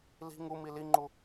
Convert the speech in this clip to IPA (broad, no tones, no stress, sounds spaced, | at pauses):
l i̤ ŋ u m i l i ŋ͡ǃ u